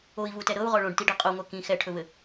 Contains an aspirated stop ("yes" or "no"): yes